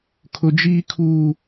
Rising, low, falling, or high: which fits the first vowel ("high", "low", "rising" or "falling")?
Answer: high